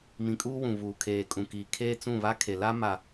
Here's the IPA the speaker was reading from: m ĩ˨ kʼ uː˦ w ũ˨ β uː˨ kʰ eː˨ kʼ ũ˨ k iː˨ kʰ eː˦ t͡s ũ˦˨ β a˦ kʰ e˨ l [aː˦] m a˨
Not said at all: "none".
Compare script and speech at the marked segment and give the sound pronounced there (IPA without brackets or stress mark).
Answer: a˦